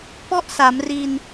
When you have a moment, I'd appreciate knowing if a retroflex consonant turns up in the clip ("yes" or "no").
no